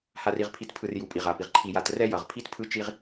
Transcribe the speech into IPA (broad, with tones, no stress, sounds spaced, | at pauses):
h a˨ r i˨ ʁ pʰ i˨ t pʰ ɯ˨ r j u˨ pʼ i˨ ʁ a˨ p i˨ ʁ ǃʰ i˨ j a˨ t r ɛ˦ j ʌ˨ ʁ pʰ i˦ t pʰ ɯ˦ t͡ʃ i˦ ʁ